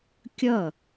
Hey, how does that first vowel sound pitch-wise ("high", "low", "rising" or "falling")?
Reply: falling